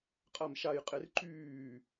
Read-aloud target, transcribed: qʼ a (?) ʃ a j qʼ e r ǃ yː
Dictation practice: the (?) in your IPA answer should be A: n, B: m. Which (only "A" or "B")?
B